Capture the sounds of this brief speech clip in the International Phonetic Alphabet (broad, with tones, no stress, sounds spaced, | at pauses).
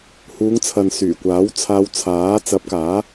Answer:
h uː˨˧ ŋ t͡sʰ ɐ˨ n s yː˨˩ kʷ aː˨˥ w t͡sʰ aː˧ w t͡sʰ aː˨˥ t͡s ɐ˨˥ p̚ k aː˨˥